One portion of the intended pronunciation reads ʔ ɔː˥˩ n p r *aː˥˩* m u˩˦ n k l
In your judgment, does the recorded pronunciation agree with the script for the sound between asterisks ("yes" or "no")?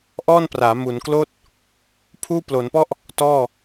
no